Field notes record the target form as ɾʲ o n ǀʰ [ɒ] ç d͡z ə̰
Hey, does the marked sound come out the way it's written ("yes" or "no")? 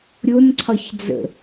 yes